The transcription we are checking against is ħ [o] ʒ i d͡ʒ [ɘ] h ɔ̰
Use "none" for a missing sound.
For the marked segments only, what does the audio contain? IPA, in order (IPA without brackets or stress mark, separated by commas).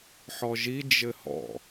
ɔ, ɘ